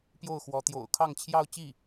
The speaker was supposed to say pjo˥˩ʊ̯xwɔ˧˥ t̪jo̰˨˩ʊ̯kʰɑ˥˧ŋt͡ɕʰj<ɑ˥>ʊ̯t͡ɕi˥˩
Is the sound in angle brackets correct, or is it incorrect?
incorrect